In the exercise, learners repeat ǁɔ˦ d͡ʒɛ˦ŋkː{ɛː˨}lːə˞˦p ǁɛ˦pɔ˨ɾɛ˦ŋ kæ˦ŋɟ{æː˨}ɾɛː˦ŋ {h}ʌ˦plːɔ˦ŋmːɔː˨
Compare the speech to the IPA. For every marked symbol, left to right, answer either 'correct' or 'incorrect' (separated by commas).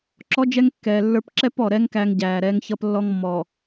correct, correct, incorrect